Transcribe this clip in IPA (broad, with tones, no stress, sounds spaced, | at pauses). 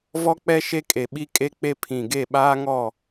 v ɔ˦ k͡p ɛ˦ ʃ e˦ kʼ e˨ ɓ i˦ kʼ e˦ k͡p e˦ pʰ ĩ˨ ɡ e˦˨ ɓ aː˦ ŋ ɔ˦˨